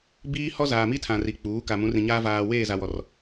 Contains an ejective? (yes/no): no